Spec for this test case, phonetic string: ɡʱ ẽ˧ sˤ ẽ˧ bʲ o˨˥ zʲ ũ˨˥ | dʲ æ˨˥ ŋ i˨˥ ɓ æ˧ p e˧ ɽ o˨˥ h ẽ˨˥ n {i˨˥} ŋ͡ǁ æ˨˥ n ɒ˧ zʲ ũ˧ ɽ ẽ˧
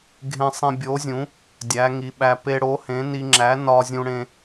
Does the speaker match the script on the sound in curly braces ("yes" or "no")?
no